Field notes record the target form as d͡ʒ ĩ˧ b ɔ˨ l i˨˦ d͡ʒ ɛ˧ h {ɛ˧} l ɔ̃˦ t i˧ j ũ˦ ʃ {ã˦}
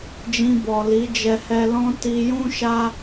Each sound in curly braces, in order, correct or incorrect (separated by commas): correct, incorrect